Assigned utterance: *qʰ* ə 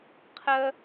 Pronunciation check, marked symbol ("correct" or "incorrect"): correct